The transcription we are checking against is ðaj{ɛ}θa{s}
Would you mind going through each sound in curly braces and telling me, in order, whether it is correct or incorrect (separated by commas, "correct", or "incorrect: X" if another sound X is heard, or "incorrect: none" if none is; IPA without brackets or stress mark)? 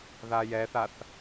correct, incorrect: θ